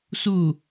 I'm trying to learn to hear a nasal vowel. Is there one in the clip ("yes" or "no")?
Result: no